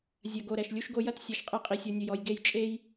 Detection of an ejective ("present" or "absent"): present